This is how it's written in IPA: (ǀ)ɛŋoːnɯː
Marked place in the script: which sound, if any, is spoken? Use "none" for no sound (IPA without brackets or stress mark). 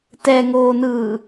t